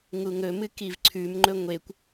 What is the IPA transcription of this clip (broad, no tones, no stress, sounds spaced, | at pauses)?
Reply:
ŋ u ŋ ɵ m ɨ k i v ǀʰ ʉ m ŋ͡ǃ ɵ ŋʷ e kʷ